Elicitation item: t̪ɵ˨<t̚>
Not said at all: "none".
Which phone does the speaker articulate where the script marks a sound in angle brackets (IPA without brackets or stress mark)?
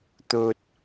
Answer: t̚